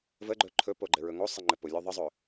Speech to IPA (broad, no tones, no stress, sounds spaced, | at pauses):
v ə ɡ͡ǃ ɵ ǃʰ ɵ p o ɡ͡ǃ ɘ ɹ ɵ ŋ o sˤ ɘ ŋ͡ǃ ɘ p ʊ lʲ ɵ ðˤ ɘ zˤ ɵ